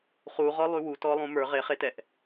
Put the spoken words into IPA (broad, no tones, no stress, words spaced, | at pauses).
χuʁɔlˠy wutɔlˠũ mə˞ ʁeχetɛʔ